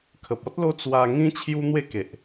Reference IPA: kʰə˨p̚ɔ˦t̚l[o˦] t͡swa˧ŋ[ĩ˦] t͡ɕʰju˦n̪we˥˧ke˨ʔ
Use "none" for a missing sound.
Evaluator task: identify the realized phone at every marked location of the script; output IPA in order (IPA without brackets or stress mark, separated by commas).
o˦, ĩ˦